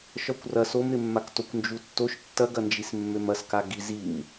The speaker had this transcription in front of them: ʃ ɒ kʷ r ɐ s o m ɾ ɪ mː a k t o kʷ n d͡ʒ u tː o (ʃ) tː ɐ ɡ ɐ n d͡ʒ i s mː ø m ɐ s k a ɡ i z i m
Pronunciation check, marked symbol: correct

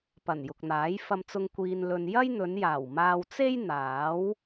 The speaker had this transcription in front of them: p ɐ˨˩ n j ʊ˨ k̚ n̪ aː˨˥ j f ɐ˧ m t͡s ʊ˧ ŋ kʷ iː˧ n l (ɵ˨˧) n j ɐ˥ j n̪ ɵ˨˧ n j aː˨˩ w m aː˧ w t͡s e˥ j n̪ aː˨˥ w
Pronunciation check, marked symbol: incorrect: ɵ˧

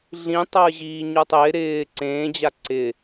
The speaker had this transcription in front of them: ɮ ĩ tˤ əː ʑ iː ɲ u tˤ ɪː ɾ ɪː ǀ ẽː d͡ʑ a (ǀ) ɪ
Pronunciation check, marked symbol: correct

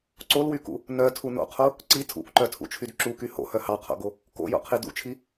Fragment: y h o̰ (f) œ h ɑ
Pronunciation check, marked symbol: incorrect: h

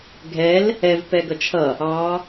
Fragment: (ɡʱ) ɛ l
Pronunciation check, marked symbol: correct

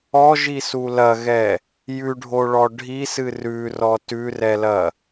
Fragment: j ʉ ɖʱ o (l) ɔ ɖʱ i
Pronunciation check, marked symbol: incorrect: ɭ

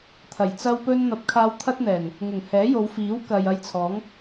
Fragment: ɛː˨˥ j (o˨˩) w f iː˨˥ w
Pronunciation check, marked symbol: incorrect: o˨˧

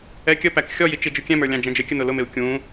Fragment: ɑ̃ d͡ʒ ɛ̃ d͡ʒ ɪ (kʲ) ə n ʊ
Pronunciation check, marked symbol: correct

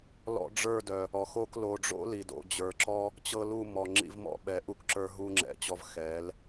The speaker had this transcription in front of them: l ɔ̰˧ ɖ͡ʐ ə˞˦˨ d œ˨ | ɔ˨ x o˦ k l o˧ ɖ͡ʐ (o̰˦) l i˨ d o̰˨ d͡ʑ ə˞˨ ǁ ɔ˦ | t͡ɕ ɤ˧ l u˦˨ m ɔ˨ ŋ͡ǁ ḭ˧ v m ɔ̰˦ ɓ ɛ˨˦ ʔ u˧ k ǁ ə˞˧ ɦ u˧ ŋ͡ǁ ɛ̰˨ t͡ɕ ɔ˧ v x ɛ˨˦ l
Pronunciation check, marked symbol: correct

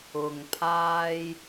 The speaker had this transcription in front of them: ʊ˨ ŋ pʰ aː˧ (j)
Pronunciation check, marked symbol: correct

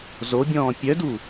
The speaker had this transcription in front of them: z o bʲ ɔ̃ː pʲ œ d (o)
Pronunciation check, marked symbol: incorrect: u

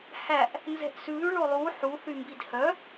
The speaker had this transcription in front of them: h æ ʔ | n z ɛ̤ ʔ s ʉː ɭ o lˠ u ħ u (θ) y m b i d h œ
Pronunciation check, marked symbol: correct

